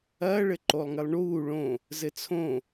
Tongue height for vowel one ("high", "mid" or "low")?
low